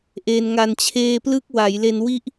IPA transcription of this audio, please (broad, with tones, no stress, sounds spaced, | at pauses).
ʔ eː˧ n ŋ a˧ n t͡ɕʰ eː˧ p l ɯ˦˥ k̚ w a˩˦ j l e˧ n w i˦˥ ʔ